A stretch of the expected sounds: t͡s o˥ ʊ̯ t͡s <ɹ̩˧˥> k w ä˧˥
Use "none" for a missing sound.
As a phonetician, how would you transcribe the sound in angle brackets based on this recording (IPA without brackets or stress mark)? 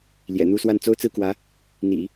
ɹ̩˥˩